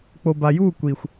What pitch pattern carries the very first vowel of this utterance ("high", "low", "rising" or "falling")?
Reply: low